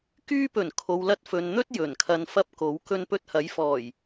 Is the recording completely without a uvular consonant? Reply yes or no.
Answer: yes